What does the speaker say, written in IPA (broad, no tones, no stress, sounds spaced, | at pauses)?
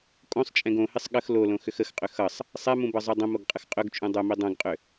kʼ õ sˤ t͡ʃʼ ɛ̃ ɡ õ h ɪ sˤ ɠ ə x l o l õ x ʏ x ə x qʼ ʏ x ʌ sˤ | sˤ ɛ m ũ b ʌ zˤ u dˤ ə̃ m o ɡ qʼ ə x qʼ ɵ ɡ t͡ʃʼ ũ dˤ ɵ m i dˤ õ ɡ qʼ ʏ